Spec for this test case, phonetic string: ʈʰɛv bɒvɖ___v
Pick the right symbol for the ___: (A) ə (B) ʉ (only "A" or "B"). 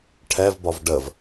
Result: A